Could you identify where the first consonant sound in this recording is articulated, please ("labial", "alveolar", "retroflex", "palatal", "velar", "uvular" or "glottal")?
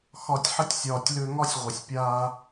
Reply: velar